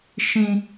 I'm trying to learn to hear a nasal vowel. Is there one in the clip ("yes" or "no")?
yes